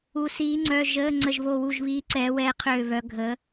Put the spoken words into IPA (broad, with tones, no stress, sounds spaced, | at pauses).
u˧˥ s iː˧˥ ŋ͡ǀ œ˧˥˧ ʒ ə˧˥˧ ŋ͡ǀ ə˦˨ ʒ β o˦˨ w u˦˨ ʒ β iː˧˥ ǀ ɛː˧˥ w ɛː˧˥ qʰ øː˦˨ β œ˧˥ ɡʱ ə˧˥